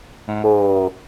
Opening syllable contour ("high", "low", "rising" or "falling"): low